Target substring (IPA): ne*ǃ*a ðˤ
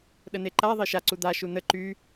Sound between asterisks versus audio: correct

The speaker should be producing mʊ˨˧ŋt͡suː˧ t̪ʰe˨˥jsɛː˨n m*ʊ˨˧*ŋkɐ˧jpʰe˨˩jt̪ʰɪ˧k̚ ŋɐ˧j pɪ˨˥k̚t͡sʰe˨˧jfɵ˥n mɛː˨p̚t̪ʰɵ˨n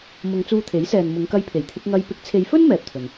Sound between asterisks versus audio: correct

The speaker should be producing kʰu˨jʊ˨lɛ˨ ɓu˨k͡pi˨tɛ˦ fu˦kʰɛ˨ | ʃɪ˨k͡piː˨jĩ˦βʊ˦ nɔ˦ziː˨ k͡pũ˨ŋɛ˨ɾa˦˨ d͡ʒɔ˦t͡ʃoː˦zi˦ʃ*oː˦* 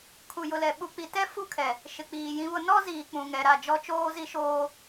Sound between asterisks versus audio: correct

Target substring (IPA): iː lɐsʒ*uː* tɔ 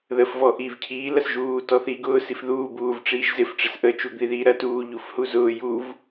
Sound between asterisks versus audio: correct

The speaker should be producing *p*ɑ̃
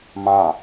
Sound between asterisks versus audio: incorrect: m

